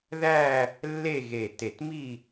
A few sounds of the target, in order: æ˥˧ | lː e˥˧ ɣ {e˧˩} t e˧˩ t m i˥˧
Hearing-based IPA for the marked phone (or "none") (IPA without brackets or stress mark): e˧˩